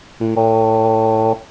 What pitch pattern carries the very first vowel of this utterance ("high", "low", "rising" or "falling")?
high